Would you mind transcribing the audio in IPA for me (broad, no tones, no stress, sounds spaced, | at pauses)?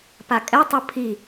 p a kʼ ɛ tˤ u pʰ i